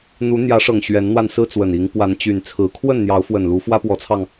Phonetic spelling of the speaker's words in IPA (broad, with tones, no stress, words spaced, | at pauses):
n̪u˨˦ n̪jä˨˦ʂɤ˨˩ŋ ɕɥɛ˨˦nn̪wa˧n sɹ̩˦t͡swə˨˩ni˨˦ŋ pwa˨˦nt͡ɕy˨˩nt͡sʰɹ̩˨˦ kʰwə˥˨nn̪jɑ˨˦ʊ̯fwə˨˩n lu˨˦fwä˦pwɔ˨˦t͡sʰɑ˧ŋ